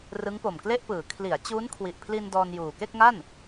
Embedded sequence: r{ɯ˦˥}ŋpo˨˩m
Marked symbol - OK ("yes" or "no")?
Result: yes